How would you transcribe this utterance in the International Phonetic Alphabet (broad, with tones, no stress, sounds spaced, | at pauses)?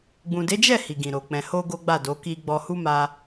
ɡ͡b ũ˨ d e˨˦ d͡ʒ ɛ˦˨ h i˨ ɡ ĩ˨ ɾ o˨ k͡p ɛ̃˨ h o˧ ɡ o˦ ɡ͡b a˦˨ d o˨˦ k i˧ ɡ͡b ɔ˧ h u˦ m a˧